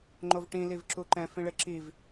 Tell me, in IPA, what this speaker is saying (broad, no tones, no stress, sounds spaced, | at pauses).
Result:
ŋ͡ǃ o v ʈ ĩ l i v ǁ u ǃ ɛ̃ f ĩ ɭ e ǁ i v